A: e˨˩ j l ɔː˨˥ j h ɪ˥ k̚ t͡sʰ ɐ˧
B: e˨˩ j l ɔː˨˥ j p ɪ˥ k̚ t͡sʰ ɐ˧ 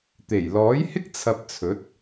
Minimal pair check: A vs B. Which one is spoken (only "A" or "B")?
A